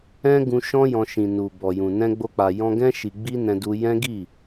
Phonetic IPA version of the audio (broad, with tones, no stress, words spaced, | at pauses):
ɛ̃˦ ɡũ˧ʃɔ̃˦ jɔ̃˧ʃĩ˨ nu˨ bɔ˨jũ˨ nɛ̃˧ɡ͡bo˧k͡pa˨ jɔ̃˧ɡɛ̃˦ ʃi˧ɡ͡bi˦nɛ̃˧ du˧ jɛ̃˦ɡi˦˨